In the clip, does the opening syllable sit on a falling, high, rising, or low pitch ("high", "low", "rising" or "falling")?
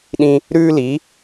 high